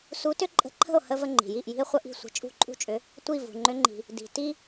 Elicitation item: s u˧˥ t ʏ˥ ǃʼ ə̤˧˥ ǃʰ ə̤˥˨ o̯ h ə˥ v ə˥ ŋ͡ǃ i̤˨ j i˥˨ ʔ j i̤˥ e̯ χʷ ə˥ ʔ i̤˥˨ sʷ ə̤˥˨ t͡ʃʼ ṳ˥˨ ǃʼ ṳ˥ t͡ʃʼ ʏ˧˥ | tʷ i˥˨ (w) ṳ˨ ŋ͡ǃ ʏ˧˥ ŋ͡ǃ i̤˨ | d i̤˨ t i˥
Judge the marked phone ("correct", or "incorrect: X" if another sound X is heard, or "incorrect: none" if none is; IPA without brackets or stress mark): incorrect: v